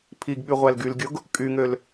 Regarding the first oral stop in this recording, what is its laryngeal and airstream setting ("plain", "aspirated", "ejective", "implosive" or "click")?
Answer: aspirated